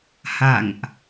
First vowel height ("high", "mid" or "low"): low